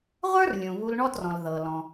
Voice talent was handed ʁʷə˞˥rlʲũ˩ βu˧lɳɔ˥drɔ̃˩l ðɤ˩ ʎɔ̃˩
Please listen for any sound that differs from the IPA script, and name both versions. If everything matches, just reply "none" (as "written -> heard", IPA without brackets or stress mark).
ʎ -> l